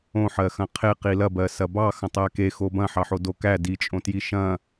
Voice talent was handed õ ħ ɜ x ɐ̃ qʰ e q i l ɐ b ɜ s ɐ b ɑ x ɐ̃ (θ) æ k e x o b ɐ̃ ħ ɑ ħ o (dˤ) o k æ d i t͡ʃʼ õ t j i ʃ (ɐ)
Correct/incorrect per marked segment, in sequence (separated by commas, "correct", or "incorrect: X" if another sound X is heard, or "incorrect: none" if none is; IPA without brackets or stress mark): incorrect: tˤ, incorrect: d, incorrect: ɐ̃